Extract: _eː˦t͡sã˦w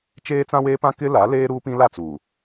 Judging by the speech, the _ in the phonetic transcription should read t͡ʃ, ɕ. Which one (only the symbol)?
t͡ʃ